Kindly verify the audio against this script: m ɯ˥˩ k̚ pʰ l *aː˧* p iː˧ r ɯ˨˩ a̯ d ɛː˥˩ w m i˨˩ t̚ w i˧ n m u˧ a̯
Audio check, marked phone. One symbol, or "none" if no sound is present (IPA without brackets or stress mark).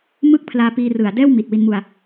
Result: aː˧